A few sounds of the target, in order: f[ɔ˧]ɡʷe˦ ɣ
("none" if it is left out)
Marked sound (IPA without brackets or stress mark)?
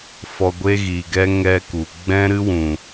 ɔ˧